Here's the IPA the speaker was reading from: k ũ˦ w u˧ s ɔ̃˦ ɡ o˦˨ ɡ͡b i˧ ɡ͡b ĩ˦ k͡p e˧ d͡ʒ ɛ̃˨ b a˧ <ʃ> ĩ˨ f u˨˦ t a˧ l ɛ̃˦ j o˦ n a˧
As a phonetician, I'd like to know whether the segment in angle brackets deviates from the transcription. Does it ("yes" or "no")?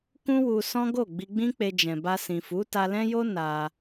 yes